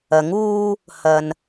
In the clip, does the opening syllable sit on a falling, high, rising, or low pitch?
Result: rising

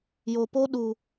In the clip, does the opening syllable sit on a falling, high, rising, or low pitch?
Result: low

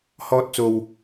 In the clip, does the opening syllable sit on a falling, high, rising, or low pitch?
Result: high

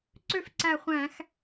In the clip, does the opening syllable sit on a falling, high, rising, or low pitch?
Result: falling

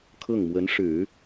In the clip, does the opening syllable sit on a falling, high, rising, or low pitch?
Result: falling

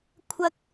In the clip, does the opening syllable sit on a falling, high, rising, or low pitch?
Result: high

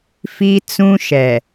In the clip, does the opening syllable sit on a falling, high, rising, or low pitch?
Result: high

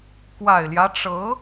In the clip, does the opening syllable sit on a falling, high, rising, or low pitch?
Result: low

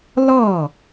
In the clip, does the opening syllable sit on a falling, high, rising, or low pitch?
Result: falling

